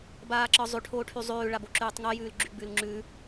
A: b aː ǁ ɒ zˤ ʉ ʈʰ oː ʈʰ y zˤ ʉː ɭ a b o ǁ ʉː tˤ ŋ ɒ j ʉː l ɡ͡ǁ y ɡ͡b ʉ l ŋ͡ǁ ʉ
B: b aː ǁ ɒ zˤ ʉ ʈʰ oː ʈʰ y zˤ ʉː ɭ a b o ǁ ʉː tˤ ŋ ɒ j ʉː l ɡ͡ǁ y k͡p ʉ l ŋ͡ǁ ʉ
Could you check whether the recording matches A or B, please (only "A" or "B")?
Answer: A